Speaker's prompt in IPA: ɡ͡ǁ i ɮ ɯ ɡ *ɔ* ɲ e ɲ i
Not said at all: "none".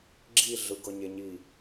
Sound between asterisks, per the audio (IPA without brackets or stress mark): ɤ